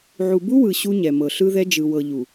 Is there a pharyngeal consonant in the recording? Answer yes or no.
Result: yes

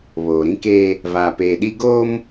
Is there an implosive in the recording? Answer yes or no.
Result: yes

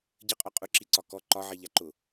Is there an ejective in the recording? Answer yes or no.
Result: yes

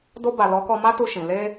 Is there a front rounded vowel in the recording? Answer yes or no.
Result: no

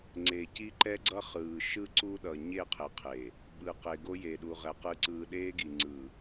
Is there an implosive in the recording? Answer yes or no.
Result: yes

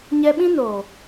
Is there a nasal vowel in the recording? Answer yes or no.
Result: yes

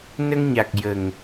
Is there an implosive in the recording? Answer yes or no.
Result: no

